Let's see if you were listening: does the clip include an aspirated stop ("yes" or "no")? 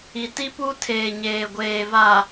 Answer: yes